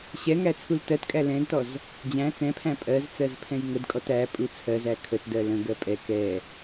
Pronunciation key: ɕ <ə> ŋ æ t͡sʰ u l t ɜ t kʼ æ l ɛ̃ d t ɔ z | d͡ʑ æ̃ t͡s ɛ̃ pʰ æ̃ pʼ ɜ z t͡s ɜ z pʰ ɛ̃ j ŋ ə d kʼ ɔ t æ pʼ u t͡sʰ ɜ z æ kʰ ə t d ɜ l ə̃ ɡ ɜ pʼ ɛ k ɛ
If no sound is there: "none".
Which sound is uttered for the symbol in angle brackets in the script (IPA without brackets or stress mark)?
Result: ɛ